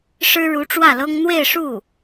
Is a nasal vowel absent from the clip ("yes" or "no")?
yes